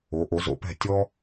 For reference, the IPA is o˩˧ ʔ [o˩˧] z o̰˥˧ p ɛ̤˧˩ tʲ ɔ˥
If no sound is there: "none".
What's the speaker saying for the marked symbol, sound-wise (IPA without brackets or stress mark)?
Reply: o˩˧